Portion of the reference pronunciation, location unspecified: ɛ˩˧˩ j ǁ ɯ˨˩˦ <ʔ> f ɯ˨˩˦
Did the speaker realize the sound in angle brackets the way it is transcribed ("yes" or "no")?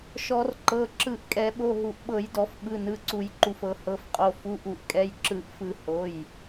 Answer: yes